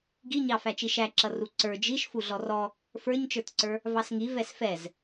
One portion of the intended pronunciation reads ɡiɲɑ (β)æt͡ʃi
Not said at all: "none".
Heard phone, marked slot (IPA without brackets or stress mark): f